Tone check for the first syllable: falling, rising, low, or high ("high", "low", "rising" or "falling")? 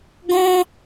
high